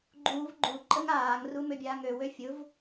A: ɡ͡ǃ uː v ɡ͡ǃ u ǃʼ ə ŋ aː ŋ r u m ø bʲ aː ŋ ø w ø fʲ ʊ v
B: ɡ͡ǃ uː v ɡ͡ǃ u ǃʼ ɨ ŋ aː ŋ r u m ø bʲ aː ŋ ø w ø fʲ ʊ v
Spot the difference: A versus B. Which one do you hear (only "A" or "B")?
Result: A